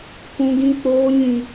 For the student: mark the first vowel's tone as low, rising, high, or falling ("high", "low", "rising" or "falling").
high